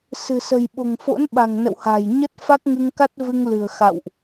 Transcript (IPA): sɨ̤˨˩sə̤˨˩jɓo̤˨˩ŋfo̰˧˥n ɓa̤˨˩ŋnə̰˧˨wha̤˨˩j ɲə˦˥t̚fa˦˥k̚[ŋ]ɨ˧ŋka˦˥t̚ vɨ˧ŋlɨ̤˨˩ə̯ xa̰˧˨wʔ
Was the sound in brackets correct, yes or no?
yes